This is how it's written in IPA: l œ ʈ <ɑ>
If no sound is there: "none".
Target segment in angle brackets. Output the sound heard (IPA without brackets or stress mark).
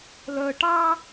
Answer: ɑ